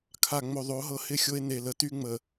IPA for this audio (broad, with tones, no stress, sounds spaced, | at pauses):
kʰ a˨ ŋ͡m o˨ ðˤ o˨˦ ɦ ɤ˦ h ɪ˦˨ xʲ o˦ e̯ n e˨ l ə˨ t y˦ ŋ͡m ə˨